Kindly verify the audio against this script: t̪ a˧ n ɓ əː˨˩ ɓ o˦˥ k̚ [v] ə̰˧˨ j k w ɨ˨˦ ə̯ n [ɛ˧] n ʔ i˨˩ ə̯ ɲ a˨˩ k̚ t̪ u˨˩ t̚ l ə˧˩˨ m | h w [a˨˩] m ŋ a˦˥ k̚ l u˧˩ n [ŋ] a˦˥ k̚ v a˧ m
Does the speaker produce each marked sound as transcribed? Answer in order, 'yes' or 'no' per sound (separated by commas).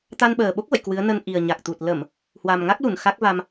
yes, no, yes, no